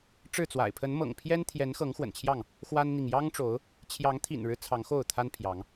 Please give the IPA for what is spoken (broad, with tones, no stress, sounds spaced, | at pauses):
ʈ͡ʂ ɻ̩˥˨ t͡s w a̰˨˩ ɪ̯ pʰ ə˨˦ n m ɤ̰˨˩ ŋ pʰ j ɛ˦ n t̪ʰ j ɛ˨˦ n x ɤ˨˦ ŋ x w ə̰˨˩ n t͡ɕʰ j ɑ˥˨ ŋ | x w a˦ n n̪ i˨ ŋ j ɑ˦ ŋ ʈ͡ʂ o˨˦ ʊ̯ | t͡ɕʰ j ɑ˨˦ ŋ t̪ʰ ḭ˨˩ n ɻ ɻ̩˦ t͡sʰ ɑ˨˦ ŋ x o˥˨ ʊ̯ t̪ʰ a˦ n pʰ j ɑ˨˦ ŋ